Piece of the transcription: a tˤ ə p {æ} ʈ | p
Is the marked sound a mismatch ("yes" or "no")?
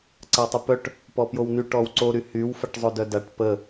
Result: yes